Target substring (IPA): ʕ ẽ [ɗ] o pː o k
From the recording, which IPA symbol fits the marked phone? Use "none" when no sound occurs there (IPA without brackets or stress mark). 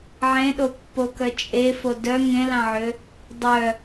ɗ